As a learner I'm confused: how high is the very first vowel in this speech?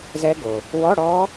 mid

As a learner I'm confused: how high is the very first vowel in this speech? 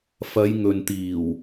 low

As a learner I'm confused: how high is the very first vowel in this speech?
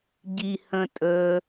high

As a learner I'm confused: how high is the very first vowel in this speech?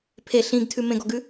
mid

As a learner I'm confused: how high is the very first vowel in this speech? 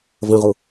mid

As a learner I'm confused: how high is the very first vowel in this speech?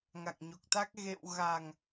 low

